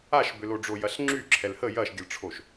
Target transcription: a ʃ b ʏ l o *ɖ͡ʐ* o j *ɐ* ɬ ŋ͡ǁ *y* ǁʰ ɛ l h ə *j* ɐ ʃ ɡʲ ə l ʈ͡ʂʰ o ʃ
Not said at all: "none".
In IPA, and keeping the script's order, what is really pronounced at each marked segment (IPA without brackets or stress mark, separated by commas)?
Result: ɖ͡ʐ, ɐ, y, j